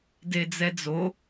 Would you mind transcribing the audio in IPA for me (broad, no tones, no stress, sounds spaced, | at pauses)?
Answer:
d e d͡z ɛ d͡z o